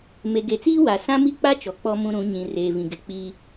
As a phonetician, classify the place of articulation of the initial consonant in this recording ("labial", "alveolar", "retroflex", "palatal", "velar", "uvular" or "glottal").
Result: labial